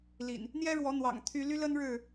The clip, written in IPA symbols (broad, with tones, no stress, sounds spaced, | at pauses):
l ḭ˨˩ n | n̪ j ɛ˦ ɻ w ɔ˨˦ n̪ w ɑ̰˨˩ ŋ t̪ʰ y˦ l y˦ l ə˦ n ɻ ɻ̩˥˨